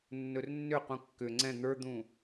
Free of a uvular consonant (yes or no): no